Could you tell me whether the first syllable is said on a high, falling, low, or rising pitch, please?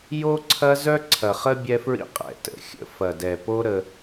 high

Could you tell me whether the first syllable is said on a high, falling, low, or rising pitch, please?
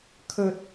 high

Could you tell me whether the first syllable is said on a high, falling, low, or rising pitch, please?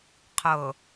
low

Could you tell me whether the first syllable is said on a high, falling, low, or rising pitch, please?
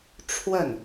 falling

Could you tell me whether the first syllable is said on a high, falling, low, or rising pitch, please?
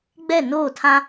falling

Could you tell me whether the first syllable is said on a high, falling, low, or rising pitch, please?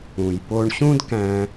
low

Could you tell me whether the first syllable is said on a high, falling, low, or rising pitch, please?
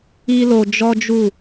high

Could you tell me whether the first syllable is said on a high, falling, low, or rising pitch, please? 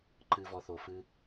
low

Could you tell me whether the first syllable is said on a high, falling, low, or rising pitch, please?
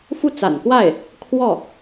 falling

